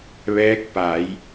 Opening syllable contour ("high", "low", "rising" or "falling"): rising